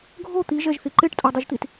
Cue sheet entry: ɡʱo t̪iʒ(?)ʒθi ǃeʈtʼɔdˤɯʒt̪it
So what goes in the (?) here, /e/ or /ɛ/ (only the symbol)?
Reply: ɛ